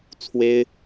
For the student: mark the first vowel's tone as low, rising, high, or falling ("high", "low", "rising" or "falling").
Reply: high